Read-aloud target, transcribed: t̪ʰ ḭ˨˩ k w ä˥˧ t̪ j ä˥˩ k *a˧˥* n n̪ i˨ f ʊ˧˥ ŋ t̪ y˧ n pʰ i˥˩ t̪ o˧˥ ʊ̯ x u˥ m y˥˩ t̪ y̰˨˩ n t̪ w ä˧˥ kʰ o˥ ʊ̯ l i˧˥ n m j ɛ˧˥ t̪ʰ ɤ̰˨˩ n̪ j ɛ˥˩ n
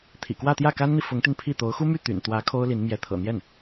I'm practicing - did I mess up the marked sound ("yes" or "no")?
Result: yes